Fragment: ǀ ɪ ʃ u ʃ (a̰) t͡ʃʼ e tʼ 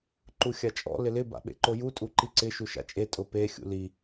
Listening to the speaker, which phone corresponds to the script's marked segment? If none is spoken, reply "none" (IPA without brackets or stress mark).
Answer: a̰